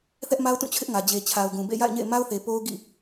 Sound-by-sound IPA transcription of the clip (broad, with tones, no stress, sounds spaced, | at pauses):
θ ɛ˦ ʔ m a˦ ʊ̯ t ũ˦˨ t͡ɕʰ ɪ˦ ʔ ŋ ä˨ d͡ʑ e˨ t͡ɕʰ a˨ ʊ̯ ɡ ũ˨ b ḛ˦˨ j a̰˦˨ ɪ̯ ɲ ḛ˦˨ ɪ̯ m a˦ ʊ̯ θ e˨ p o˦ ʊ̯ ɡ ḭ˦˨